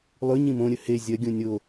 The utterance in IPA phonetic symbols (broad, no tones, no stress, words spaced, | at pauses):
lˠʉ ɲĩmõɾʲɵ he zʲɐɡʲũ nʲo